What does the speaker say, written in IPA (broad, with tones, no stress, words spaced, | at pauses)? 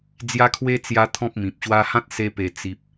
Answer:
d͡zja˦kʰwe˦ t͡sja˦t̪ʰɔ̃˦p̚mĩ˨p̚ɕwa˦ hã˦t̚se˧pe˨˩ t͡si˨p̚